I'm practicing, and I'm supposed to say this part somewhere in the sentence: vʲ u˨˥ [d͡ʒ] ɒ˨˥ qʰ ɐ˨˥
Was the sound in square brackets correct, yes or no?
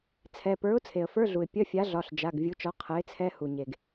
no